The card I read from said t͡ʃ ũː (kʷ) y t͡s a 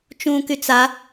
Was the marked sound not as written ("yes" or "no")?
yes